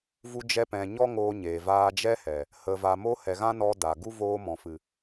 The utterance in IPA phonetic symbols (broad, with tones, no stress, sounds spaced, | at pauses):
v u˧ d͡ʒ ɛ˧ p ɛ̃˨ ɲ ɔ˦ ŋ oː˧ ɲ eː˨ v aː˧ d͡ʒ ɛ˦ h ɛ˨ | h ə˨ v a˨ m o˧ h ɛ˨ ɣ ã˦ n ɔ˧ d a˨ ɡ u˦ v oː˧ m ɔ̃˨ f ɨ˨